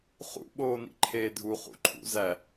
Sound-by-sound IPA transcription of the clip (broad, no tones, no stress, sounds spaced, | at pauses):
χ ṵ ɓ oː n ḭ ǃʰ eː dʱ u χ ṵ ǃʰ ṵ z æ